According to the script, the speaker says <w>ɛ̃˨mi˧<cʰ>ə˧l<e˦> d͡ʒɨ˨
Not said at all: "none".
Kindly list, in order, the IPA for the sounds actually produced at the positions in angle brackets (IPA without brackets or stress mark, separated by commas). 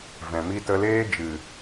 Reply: v, t, eː˦